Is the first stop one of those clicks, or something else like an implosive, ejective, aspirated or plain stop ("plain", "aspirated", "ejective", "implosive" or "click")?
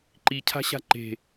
click